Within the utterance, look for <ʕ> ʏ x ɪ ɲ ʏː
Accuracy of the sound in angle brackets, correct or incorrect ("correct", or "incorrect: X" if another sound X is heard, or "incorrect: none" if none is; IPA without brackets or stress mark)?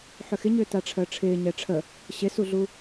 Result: incorrect: ħ